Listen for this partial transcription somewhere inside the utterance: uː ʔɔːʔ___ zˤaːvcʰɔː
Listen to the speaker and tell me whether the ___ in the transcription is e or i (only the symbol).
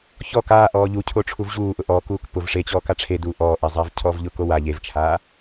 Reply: e